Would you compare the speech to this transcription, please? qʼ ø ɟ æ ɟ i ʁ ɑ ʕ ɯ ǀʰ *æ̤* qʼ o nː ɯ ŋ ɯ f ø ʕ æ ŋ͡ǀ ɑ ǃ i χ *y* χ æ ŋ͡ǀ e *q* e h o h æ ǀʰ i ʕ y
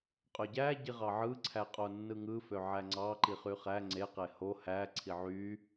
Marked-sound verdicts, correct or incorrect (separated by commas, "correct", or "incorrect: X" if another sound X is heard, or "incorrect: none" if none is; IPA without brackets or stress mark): incorrect: æ, correct, correct